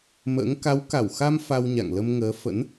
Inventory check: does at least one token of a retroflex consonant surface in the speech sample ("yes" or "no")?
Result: no